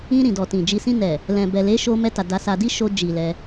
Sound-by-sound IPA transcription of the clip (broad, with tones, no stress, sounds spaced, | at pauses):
ĩ˧ ɾ ĩ˨ d ɔ˨ t ĩ˨ d͡ʒ i˧ s ĩ˧ n ɛ˨ | l ɛ̃˨ b ɛ˨ l e˨˦ ʃ o˧ m ɛ˧ t a˨ d a˧ s a˧ d i˦ ʃ o˧ d͡ʒ i˨ l ɛ˧